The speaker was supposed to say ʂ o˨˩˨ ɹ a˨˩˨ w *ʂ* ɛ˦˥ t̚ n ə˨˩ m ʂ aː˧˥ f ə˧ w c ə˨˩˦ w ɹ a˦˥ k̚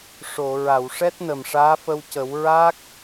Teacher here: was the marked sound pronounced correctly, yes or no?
yes